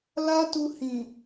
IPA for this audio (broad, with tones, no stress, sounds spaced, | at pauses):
l a˦ t u˧ h ĩ˨